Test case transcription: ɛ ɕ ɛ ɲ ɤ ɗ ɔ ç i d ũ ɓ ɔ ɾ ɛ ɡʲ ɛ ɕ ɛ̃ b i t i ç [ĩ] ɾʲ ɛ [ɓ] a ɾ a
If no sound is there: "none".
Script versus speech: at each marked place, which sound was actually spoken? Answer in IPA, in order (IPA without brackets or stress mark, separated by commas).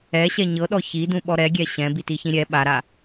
ĩ, ɓ